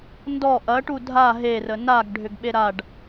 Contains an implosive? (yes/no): yes